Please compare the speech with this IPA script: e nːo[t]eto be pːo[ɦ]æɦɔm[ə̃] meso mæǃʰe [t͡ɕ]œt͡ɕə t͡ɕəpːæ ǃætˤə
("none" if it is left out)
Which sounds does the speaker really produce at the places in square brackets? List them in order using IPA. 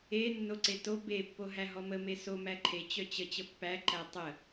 ǀ, ɦ, ə, t͡ɕ

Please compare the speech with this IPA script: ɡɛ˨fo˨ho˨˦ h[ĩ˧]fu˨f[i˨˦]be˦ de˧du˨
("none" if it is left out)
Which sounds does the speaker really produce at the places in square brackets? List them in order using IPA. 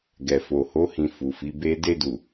ĩ˧, i˨˦

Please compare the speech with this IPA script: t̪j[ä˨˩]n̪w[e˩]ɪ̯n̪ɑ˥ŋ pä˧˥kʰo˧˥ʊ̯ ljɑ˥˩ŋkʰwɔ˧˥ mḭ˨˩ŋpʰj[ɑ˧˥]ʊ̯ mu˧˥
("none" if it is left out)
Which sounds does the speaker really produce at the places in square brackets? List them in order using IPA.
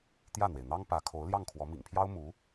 ä˥˩, e˩, ɑ˥

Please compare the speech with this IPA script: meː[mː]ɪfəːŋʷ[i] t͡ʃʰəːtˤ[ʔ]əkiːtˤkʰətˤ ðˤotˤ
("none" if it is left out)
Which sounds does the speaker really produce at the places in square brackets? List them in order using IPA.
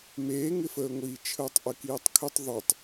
ŋ, iː, ʔ

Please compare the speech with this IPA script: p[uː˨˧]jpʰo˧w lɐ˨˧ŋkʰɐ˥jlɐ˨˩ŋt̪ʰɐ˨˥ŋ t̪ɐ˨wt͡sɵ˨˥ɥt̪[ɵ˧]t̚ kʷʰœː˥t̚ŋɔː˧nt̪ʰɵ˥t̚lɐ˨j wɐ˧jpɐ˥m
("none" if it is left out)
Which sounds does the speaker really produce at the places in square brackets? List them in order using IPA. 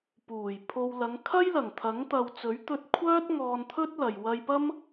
uː˨˩, ɵ˧

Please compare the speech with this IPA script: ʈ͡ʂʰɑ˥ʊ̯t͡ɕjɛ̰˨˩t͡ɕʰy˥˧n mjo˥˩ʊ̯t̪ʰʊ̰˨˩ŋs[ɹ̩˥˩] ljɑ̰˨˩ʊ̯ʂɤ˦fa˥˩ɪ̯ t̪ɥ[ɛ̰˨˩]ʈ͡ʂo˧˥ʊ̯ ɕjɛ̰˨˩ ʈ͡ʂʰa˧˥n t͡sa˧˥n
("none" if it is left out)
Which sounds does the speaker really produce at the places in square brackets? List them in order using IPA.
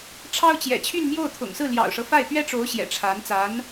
ɹ̩˥˩, ɛ˥

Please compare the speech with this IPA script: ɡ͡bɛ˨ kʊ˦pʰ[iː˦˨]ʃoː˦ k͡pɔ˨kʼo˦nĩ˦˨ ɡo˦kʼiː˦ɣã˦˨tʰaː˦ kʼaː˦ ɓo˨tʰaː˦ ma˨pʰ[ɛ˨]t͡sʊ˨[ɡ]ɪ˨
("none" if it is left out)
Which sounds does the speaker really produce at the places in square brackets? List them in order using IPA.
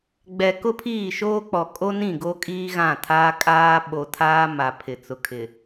iː˦˨, ɪ˨, kʰ

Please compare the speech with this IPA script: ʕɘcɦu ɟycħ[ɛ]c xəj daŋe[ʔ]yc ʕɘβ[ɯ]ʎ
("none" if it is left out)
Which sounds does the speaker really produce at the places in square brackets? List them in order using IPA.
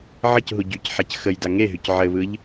ɛ, ɦ, ɯ

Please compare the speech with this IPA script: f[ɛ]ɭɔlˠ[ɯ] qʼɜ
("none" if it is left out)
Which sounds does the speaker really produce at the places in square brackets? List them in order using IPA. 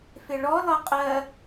ɪ, ɤ

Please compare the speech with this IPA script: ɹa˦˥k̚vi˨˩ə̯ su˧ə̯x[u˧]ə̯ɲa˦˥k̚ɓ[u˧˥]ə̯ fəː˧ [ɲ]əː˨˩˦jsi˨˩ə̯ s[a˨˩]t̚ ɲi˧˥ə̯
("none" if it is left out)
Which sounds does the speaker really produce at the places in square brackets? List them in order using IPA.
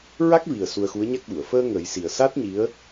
u˧˥, u˨˩˨, ŋ, a˦˥

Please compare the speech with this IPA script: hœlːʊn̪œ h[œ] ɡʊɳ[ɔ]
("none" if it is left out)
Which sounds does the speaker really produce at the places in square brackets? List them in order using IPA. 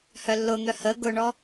ə, ɔ

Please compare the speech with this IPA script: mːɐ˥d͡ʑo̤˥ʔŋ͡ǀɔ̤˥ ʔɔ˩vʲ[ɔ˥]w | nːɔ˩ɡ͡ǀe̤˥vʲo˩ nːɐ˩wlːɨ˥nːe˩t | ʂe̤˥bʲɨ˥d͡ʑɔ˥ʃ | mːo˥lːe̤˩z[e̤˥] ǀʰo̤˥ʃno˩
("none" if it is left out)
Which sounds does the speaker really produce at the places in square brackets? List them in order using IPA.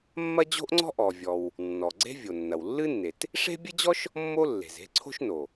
ɔ˩, e̤˥

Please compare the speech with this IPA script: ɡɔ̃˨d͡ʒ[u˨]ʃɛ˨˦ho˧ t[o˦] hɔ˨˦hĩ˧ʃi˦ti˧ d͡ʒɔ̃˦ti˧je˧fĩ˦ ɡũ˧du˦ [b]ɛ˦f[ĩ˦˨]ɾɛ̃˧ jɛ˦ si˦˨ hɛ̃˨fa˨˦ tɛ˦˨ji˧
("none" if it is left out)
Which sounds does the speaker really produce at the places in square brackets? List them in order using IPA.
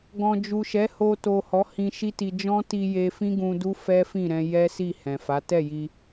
u˨, o˨, f, ĩ˦˨

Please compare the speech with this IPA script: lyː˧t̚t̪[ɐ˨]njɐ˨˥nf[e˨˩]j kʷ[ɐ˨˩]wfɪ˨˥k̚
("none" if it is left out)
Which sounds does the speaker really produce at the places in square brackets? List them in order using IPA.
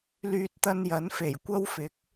ɐ˧, e˨˩, ɐ˥

